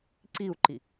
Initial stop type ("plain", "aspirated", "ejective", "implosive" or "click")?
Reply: click